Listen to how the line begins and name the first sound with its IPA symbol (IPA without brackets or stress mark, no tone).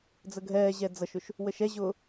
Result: d͡z